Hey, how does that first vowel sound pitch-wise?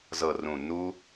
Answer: low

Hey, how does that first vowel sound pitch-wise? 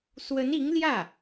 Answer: rising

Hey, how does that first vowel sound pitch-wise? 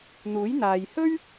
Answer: rising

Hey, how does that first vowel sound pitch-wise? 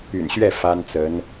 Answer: low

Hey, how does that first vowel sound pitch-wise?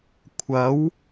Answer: rising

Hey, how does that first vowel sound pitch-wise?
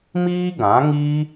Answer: high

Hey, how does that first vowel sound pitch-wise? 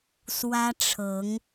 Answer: high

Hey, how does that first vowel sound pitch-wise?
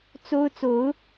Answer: high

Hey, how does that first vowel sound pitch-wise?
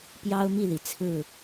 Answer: high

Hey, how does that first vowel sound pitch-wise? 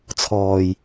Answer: low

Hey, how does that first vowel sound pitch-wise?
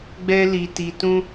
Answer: high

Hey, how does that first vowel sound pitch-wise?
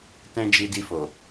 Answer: high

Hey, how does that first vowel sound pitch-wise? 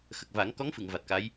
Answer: low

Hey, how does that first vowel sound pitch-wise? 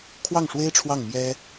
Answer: falling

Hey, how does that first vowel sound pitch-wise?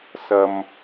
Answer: low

